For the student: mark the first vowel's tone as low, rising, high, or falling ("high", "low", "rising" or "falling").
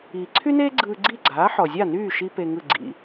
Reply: low